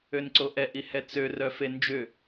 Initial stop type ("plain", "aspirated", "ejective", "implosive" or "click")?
click